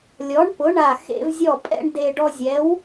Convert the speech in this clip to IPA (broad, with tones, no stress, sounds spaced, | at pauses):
lʲ ɔ˨˥ ɳ p ʊ˨˥ ɳ a˧˩ x ḛ˧ v zʲ ɔ˧˩ pʼ ɛ̰˧ ɳ d e˧ ɖ ɔ˧ zʲ ɛ˨˥ w